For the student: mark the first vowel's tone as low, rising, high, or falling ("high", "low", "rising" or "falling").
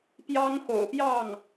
high